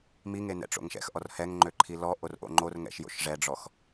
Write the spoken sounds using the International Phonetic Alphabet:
m i ŋ e n ɛ̰ ʈ͡ʂ o̰ ŋ ʃ ɛ̰ x ʔ ɔ r h ɛ ŋ ŋ͡ǃ ø ǃʰ i l ɔ ʔ o r ʔ o̰ ŋ͡ǃ o r ŋ ɛ̰ ʃ j o̰ ʃ ʐ ɛ ɖ͡ʐ ɔ x

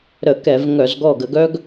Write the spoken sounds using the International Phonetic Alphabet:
ɾ ə˧˩˧ k ɛ˧˩˧ v ŋ œ˧˩˧ z ɡ ɔ˧˩ ɡ ə˧˩˧ ɡ œ˦ ɡ

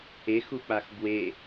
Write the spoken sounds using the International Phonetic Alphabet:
e x u k͡p a x b w e

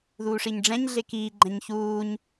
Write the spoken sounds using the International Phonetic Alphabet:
ð uː ʂ i ɲ ɖ͡ʐ ɛ̃ ɲ ɮ e k iː ɡ͡ǃ ɛ̃ ɲ ç uː ɲ

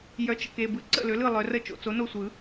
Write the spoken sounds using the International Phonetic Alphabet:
j œ˩˥ t͡ʃ ə̰˨ k e˨ b ɯ˩˥ ǀ ə̰˥˩ l ø˩˥ l ɯ˥˩ lˠ œ˨˩˦ r ə˥˩ t͡ʃ o̰˨ t͡s o˩˥ n o˥˩ sʷ ɯ˨˩˦

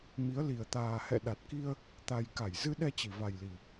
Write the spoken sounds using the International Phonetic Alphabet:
m i˨˦ ə̯ l i˨˩ ə̯ t̪ aː˨˩ h ɛ̰˧˨ ɗ a˨˩ t̚ k i˧ ə̯ | t̪ a˨˩ j k a˧˩ j z ɨ˧ ɗ ɛ˧ t͡ɕ i˧˩ v a˨˩ j l i˨˩

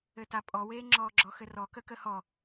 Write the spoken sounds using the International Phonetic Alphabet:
ɘ t a pʼ ɔ w eː ŋ͡ǁ ɔː ɡ͡ǁ ɔ x ɘ r ɔ k ə k ə h ɔ

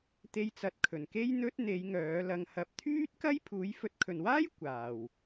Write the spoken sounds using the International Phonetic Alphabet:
t̪ e˧ j t͡s ɐ˨˥ t̚ kʰ ɵ˨˩ n k e˥ j n̪ ɵ˥ t̚ n̪ e˨˧ j ŋ œː˨˥ l ɐ˧ ŋ h ɐ˨˥ p̚ t̪ʰ yː˥ t̚ k ɐ˥ j pʰ uː˨˥ j f ɵ˨˥ t̚ kʰ ɵ˨ n w aː˥ j kʷ aː˨ w

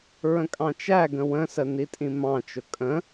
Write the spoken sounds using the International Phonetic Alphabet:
ɹ ə̃ kʼ ɑ̃ t͡ʃ æ ɡ ə̃ w ə̃ s ə n i tʼ ĩ m ɑ̃ t͡ʃ ʊ kʼ ə̃

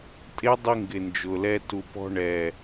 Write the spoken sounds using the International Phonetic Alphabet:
tʼ e˦ dˤ i˧ ŋ ɡ ɪ˨ n d͡ʒ ʊ˨ l ɛ˧ t u˨ p ɔ̤˧ ɳ ɛ˨

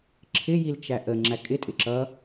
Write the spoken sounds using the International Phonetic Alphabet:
ǁʰ ɪ j i l t͡ʃ æ ʔ ə ŋ͡ǁ æ kʼ ɪ tʼ ɪ ǁ ʌ

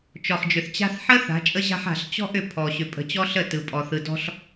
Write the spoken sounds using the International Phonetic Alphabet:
t͡ʃ ɔ˨ χ d͡ʒ ʏ˨ θ t͡ɕ a̤˦ θ ħ ə˦ θ a̤˨˦ t͡ʃʼ ə˦ ʑ a̤˦ ħ a̤˨ ɬ t͡ɕ ɔ̤˦ ʔ ʏ˨ pʰ ɔ˨ ɕ ʏ˨ pʼ ə̤˨ t͡ɕ ɔ˦ ɬ ə˦˨ t ɯ˨ pʼ ɔ˨ θ ɯ˨ d ɔ̤˦ ɬ

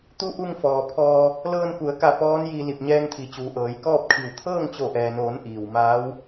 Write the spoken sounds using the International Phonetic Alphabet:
t̪ u˧˥ ʔ u˧ ŋ f ɔː˩ pʰ ɔː˧ | l ɤː˧ n k u˩˧ ə̯ k a˧˩ p ɔː˧˥ n j i˧ l i˧˩ p̚ ɲ ɛː˧ ŋ t̪ʰ i˩˧ t͡ɕ uː˩ ʔ ɤː˩˧ j k ɔː˥˨ p̚ kʰ i˧˩ w t̪ʰ ɤː˥˨ ŋ t͡ɕ o˧˩ ʔ ɛː˩ n oː˩˧ n ʔ iː˩ w m aː˧˥ w

